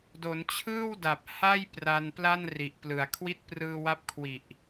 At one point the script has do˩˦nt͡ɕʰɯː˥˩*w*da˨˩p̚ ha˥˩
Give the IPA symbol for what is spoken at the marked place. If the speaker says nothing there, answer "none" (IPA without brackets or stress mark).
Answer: w